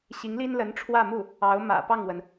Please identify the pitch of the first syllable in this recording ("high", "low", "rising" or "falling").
rising